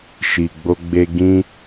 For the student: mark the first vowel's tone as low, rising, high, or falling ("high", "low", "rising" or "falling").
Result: low